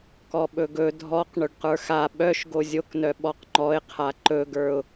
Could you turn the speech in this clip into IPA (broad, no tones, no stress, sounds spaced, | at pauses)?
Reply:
k ɔ ɓ ɵ ɡ ɵ dʱ ɔ q ɳ ɵ ɖ q ə˞ x a ɓ œ ʃ ɡ o zʲ o k n œ ɓ ɔ q ŋ͡ǃ ɔ ɪ̯ qʰ a ǃ ɵ ɡ ə˞ ʊ̯